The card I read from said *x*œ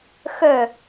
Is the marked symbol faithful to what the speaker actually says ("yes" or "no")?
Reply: yes